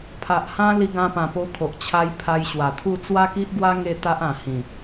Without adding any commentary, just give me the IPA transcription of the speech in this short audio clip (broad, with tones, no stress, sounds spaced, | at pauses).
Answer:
pʰ a˨ ʔ h ã˧ l i˧ ɡ ã˧ p ã˨˩ p o˧ kʰ o˨ ʔ t͡ɕʰ a˧ j pʰ a˧ j ɕ w a˨˩ t̪ʰ u˥˧ t͡s w a˦ k i˦ ʔ ɡ w a˦ ŋ e˥˧ t̪ a˦ ʔ ã˨˩ h ĩ˨˩